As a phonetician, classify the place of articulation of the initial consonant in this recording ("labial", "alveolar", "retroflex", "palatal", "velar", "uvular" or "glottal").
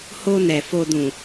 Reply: glottal